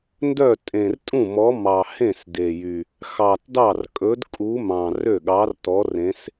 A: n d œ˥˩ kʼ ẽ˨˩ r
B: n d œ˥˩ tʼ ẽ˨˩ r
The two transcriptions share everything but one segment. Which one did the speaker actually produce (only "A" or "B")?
B